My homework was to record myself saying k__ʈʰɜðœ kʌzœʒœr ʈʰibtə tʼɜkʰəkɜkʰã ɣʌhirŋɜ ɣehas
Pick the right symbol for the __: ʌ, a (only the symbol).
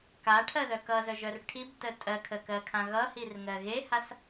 a